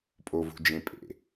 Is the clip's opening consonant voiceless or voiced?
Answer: voiceless